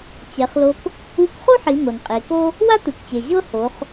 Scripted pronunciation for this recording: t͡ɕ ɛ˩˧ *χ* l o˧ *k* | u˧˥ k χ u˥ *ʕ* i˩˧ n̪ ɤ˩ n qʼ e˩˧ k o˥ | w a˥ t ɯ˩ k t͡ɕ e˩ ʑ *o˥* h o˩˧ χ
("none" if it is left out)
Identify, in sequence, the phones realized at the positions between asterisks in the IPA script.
χ, k, ħ, ɤ˥

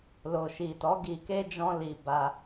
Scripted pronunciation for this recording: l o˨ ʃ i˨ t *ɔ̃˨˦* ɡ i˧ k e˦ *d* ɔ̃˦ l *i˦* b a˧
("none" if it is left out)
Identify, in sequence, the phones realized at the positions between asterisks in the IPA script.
ɔ˨˦, d͡ʒ, i˧

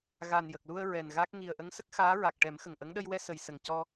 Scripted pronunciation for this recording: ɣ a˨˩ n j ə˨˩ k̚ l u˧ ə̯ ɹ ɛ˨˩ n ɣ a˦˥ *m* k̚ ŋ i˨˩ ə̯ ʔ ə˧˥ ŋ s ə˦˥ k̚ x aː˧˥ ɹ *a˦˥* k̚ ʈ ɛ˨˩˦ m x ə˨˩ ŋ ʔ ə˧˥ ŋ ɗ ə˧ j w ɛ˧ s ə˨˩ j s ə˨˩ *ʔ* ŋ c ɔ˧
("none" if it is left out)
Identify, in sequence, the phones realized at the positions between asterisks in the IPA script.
none, a˨˩, none

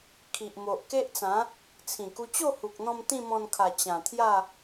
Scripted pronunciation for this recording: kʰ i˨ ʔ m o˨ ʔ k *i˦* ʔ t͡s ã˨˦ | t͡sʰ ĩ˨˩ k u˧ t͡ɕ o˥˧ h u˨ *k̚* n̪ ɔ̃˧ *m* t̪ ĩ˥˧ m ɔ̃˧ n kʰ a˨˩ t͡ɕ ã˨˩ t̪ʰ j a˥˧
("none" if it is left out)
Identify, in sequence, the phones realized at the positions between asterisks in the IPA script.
e˦, k̚, m

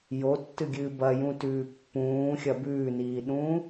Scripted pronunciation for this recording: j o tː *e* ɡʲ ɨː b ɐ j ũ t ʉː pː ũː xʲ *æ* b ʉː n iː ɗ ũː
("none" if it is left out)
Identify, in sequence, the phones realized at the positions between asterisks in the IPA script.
ɨ, ɐ

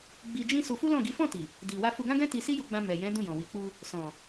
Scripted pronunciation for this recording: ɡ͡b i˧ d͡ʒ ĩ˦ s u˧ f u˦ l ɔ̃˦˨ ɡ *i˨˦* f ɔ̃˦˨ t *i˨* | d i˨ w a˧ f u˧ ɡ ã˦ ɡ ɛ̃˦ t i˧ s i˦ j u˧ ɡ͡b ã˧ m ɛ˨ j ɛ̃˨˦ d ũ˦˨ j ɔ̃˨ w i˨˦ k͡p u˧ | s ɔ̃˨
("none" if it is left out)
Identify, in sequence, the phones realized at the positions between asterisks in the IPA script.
i˨˦, i˨

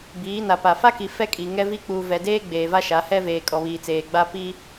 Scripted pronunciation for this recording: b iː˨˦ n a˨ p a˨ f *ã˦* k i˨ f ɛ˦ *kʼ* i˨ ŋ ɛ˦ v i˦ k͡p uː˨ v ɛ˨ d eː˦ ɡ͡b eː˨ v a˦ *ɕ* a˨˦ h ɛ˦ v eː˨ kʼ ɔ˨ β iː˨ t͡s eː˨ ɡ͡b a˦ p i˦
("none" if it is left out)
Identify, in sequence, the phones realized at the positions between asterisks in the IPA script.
a˦, kʼ, ʃ

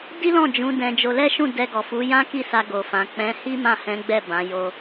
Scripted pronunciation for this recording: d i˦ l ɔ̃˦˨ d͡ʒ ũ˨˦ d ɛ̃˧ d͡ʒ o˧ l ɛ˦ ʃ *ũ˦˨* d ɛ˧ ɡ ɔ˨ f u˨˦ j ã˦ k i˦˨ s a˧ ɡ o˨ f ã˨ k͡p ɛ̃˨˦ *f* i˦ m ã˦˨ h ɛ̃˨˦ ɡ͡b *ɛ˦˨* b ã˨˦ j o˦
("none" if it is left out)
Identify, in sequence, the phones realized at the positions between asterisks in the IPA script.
ũ˦˨, h, ɛ˦˨

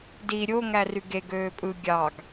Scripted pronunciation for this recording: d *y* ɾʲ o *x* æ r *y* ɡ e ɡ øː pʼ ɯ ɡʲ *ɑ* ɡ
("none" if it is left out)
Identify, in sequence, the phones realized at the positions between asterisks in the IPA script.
i, ŋ, y, ɑ

